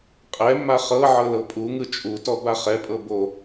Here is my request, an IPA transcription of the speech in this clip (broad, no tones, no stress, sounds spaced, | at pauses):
qʼ ɛ mː a χ ɤ ʕ ɤ l ɤ pʼ u ŋ ɯ t͡ʃʼ u t ɔ b a χ ɛ pʼ ɤ b o